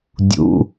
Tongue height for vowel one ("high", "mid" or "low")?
high